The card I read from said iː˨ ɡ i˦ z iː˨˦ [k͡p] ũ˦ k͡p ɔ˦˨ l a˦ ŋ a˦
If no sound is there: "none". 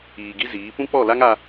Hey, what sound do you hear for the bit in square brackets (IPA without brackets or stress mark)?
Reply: p